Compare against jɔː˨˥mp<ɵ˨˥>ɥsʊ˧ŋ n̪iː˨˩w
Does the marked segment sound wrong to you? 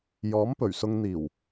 yes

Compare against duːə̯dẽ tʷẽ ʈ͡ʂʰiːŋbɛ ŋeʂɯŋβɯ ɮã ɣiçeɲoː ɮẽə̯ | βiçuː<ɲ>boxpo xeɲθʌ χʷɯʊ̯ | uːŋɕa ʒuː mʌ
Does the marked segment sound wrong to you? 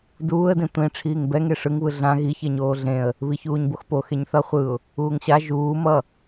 no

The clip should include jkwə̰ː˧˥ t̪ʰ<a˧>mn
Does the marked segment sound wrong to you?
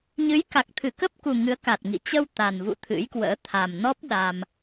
yes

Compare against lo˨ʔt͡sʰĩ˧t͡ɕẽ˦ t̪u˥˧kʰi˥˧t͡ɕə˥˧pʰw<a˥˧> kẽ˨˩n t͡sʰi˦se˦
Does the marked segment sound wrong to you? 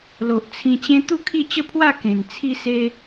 no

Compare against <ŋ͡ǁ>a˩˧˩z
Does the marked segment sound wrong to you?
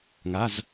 yes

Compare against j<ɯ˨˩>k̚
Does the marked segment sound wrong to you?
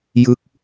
yes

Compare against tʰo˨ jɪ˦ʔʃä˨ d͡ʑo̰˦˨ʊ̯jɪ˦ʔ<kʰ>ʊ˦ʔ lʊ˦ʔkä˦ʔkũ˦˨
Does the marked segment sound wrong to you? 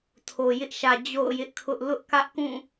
no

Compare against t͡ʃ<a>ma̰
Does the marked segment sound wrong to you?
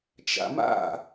yes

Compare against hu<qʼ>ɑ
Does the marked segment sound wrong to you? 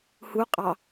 no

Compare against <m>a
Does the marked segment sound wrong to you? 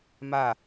no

